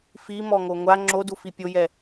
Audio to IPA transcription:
f i m ɔ ŋ o ŋʷ a ŋ͡ǁ o d u f i pʲ o j ɛ

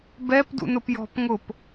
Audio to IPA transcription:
b ɛ p d ṵ n ʊ p j ɔ̤ p ŋ ʊ p

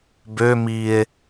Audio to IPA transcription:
b ø m i e̯

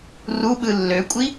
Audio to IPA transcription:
r u ɓ ɯ lː ø kʷʼ i

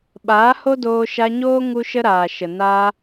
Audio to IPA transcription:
ɓ aː˨˦ h o˦ d oː˧ ʃ a˧ ɲ oː˦ ŋ u˦ ʃ ə˦ ɾ aː˨ ʃ ə˨ n a˧

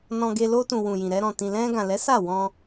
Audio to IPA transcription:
n ɔ̃˧ ɡ e˧ l o˧ t ũ˨ w ũ˨ j ĩ˨ ɾ ɛ˧ ɾ ɔ̃˨ t ĩ˨ l ɛ̃˧ ɡ ã˨ l ɛ˨˦ s a˦˨ w ɔ̃˧

